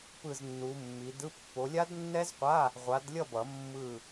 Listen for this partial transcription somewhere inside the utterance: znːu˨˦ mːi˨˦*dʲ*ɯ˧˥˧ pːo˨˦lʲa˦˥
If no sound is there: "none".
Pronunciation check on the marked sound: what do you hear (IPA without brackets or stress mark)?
d